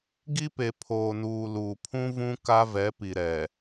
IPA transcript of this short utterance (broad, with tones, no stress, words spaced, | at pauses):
ɡi˦pe˨ pʰoː˨nuː˨ luː˨pʰũ˦vũ˦ ka˦vɛ˨˦pi˨ɾɛ˨